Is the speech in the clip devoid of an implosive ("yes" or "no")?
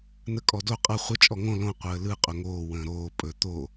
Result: yes